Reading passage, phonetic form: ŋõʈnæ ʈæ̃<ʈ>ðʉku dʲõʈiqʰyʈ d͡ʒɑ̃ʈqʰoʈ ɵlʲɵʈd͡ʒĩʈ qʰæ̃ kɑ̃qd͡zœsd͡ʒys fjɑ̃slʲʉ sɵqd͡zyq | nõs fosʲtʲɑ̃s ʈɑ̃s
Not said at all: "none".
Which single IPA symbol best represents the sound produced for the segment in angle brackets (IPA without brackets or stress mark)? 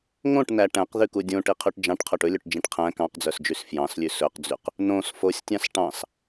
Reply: q